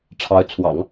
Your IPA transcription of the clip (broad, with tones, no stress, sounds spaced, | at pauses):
ʈ͡ʂʰ ɑ˧˥ ʊ̯ t͡sʰ w ɑ̰˨˩˦ ŋ